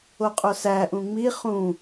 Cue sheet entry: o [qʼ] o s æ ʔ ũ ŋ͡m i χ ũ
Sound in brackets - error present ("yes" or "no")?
no